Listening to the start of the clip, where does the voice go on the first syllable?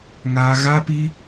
high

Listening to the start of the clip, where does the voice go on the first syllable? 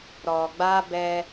low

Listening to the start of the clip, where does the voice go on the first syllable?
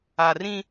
low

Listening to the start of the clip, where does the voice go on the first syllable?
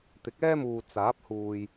rising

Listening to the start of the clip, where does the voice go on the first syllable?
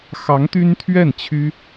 rising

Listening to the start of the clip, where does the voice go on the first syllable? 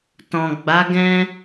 low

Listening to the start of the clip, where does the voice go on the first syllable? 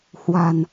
low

